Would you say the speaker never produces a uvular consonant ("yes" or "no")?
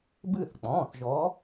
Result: yes